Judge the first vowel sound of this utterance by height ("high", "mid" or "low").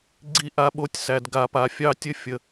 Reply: high